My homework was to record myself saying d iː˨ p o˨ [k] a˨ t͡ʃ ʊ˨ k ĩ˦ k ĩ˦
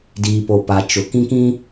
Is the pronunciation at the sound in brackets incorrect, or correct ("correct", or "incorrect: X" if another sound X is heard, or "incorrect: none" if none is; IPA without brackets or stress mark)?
incorrect: p